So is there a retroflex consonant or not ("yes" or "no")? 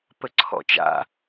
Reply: no